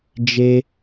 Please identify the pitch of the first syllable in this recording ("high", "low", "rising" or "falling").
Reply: high